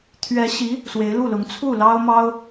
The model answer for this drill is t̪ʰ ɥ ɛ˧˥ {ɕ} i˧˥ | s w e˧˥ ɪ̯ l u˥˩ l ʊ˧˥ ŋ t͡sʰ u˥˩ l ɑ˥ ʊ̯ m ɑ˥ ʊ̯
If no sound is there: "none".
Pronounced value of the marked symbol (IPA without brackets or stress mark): ɕ